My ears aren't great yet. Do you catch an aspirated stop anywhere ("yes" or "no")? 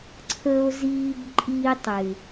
yes